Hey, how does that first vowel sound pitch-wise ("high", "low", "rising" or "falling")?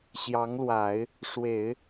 rising